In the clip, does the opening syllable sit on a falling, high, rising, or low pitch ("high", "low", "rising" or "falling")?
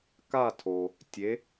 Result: falling